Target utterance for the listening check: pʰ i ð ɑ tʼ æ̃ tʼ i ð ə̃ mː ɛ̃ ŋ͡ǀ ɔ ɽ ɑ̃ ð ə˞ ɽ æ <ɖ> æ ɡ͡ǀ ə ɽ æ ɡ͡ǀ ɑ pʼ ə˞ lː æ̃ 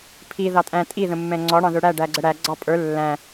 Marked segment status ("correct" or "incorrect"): correct